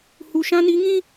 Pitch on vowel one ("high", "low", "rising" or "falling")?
low